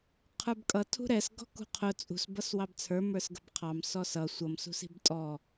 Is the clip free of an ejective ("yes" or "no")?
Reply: no